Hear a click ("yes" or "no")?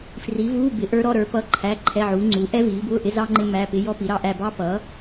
yes